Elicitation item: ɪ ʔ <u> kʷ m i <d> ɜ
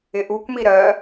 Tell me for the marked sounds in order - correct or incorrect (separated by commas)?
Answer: correct, incorrect